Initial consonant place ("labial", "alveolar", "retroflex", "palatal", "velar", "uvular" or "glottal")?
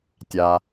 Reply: alveolar